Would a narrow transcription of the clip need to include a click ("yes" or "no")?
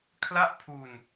no